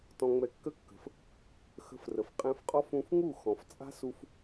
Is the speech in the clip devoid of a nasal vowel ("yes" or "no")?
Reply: no